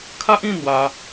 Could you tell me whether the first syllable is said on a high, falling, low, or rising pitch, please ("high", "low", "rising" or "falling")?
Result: high